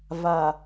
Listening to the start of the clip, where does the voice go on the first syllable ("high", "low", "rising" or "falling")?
low